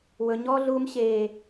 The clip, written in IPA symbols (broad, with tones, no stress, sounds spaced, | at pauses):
w ɵ˦ ɲ ɔː˦ ɮ uː˦ m ɕ eː˦